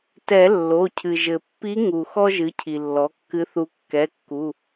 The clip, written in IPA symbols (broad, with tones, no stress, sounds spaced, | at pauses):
t ɛ˨˩˦ lː o˩˧˩ cʰ ɨ˩ ʒ ɘ˩ pː i˧˥ ŋ u˩ x ɔ˥ ʒ ɨ˩˥ cʰ i˩ lː ɔ˩˥ kː ɨ˧˥ θ u˧˥ kː ɛ˩˧˩ kː u˩˧˩